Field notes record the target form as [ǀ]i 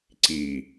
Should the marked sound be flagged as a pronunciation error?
no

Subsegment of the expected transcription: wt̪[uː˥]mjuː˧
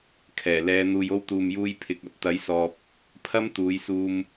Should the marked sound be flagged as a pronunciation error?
yes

